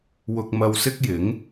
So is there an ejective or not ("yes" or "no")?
no